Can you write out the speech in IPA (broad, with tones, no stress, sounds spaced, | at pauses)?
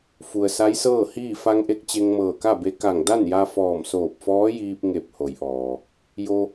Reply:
f u˩ ə̯ s a˧˥ j s ɤː˥˨ h iː˥˨ f a˧ ŋ ʔ e˧ k̚ t͡ɕ e˧ ŋ m ɤː˧˩ k a˥˨ b e˧˥ k a˧˩ ŋ d a˥˨ n j a˧ f ɔː˧˩ m s oː˧˩ p̚ f ɔː˧˥ j iː˧ p̚ ŋ e˧˩ p̚ h o˩˧ j ʔ ɔː˩ | j o˧